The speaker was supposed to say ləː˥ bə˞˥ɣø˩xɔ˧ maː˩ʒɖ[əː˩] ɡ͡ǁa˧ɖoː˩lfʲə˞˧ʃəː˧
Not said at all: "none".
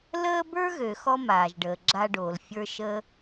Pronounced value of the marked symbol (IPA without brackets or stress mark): əː˩